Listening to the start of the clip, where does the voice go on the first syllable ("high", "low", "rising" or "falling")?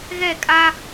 falling